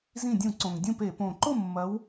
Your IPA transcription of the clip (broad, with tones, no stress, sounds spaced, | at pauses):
z ĩ˧˩ dʲ ũ˧˩˧ ǀ õ˩ ŋ dʲ ũ˥˨ p e˧˩˧ p õ˧˩ ǃ o˥˨ mː ɐ˨˦ w